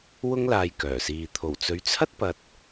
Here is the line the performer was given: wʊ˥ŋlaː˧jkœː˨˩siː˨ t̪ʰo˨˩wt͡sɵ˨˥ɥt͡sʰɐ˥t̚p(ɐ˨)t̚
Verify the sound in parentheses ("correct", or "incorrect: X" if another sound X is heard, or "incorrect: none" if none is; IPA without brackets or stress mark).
correct